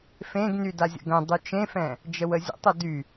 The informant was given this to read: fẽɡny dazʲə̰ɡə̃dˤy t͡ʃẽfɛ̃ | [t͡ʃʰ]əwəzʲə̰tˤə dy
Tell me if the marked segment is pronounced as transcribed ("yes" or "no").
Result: no